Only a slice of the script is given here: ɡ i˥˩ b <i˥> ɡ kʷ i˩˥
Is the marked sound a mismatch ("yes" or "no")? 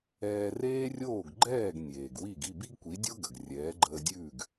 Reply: no